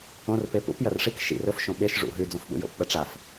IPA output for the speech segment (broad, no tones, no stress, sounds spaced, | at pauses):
õ r p e p ṵ p j ɐ r ʂ i k ʃ ḭ r ɵ f ʃ õ ɓ e ʃ ʐ ṵ ɦ ʉ d͡z õ f ɓ ṵ j o̰ p ɓ ɐ ʈ͡ʂ a f